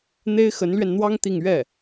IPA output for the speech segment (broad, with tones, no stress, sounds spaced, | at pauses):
n̪ e˥ ɪ̯ x ə˧˥ n l ɥ ɛ˧ n n̪ w ɑ˥ ŋ t̪ i˥˧ ŋ ɥ ɛ˥˩